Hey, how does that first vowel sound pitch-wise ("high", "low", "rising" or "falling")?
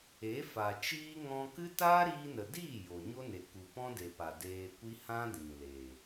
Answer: rising